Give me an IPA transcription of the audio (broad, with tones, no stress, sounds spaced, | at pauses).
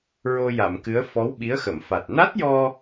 ɹ o˧ j a˨˩˨ m k ɨ˧˥ ə̯ f ɔ˧˥ w ɓ i˧˥ ə̯ x ə˨˩˨ m f a˨˩ t̚ n a˦˥ t̚ j ɔ˧